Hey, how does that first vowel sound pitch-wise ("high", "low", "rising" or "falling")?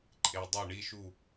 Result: low